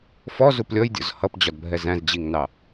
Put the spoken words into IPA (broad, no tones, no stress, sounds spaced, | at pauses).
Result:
f ɔ z u p lʲ ɔ j dʲ ɔ̰ z h ʌ p d͡ʑ ɒ d bʱ ɛ z æ̃ z d͡ʑ i ŋ n ɑ